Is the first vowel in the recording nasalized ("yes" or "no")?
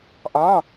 yes